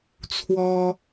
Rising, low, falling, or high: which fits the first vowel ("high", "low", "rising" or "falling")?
high